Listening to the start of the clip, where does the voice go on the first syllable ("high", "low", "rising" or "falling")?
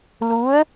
rising